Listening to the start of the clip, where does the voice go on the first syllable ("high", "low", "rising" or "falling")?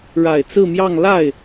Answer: low